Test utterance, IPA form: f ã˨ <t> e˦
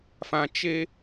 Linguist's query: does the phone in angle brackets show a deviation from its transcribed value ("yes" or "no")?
yes